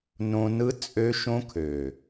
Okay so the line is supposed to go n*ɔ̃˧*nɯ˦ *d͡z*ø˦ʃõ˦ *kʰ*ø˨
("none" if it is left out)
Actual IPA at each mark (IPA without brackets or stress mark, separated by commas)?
õ˧, t͡sʼ, kʰ